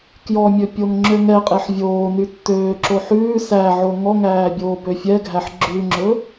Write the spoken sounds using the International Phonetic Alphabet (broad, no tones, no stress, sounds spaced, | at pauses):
k j ɔ mʲ ɵ pʲ o ŋ ŋ͡ǁ ø ŋ ɛ qʼ e ħ vʲ oː n y tː øː ǁ o ħ ʉː s æ ʕ o ŋ ɔ ŋ æː bʲ oː b ø fʲ ɛ ɡʱ æ ħ ɡ͡ǁ ʉ ŋ͡ǁ ɵ